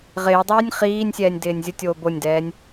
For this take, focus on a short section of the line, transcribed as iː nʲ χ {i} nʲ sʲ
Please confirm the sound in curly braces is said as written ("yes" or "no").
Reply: no